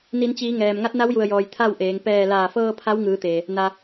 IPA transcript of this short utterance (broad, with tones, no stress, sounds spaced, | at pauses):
n i˩˧ n t͡ɕ iː˩˧ ŋ ɛː˩ m ŋ a˧˥ t̚ n a˧˥ w j u˩ ə̯ j ɔː˩ j t̪ʰ a˥˨ w ʔ eː˩˧ ŋ p ɛː˧˩ l aː˧˩ f ɤː˧ pʰ a˧˥ w ŋ ɯː˩˧ t̪ eː˩ | n a˩